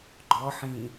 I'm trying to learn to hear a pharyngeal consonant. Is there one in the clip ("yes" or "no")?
yes